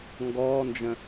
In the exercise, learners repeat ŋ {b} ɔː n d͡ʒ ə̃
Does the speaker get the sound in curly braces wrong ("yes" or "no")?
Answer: yes